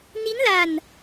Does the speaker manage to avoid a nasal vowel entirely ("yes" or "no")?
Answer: yes